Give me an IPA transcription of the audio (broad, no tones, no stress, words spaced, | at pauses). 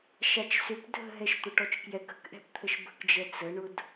ʃat͡ʃsʏp dʱə̤ɦɛʃ t̪ʊʈɔt͡ʃkjɛk ə̤kʔɛ̤pt̪ʰəʃ bə̤kd͡ʒɛ t͡səɳʊd